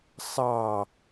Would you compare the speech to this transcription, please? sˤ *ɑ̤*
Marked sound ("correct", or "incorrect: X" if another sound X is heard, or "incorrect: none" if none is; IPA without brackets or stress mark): incorrect: ɑ